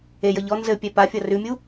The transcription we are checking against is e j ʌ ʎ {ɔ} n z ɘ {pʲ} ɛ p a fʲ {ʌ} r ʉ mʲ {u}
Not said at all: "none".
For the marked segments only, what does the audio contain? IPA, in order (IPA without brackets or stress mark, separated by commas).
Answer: ɔ, pʲ, ʌ, u